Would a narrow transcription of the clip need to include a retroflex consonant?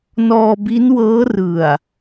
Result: no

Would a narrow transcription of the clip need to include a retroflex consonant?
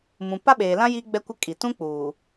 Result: no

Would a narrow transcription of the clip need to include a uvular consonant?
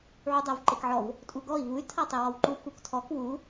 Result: no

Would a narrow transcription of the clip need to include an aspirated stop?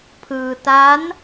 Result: yes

